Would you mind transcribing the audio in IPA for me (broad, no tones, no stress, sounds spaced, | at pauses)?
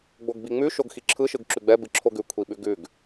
ɡ͡b o ɡ b i ŋ͡m ʉ ʃ o ɡ x i ǁʰ ɯ ʃ ɯ ɡ ǁ ʉ ɡ͡b ɛ b ɨ ǁʰ o ɡ ʉ kʷʰ i ɓ ʉ ɡ ʉ ɡ